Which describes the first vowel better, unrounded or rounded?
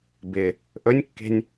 unrounded